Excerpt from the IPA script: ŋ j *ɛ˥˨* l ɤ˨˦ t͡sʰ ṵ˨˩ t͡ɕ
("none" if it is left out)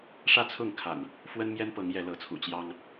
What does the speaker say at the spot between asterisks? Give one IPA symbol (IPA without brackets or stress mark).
ɛ˨˦